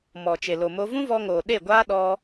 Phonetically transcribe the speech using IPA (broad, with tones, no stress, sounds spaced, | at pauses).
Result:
m ɔ˨ t͡ʃ e˨ l o˨ m o˧ v ũ˦ v ɔ˧ ŋ oː˨ ɗ e˦˨ ɡʷ aː˦ ɗ ɔ˧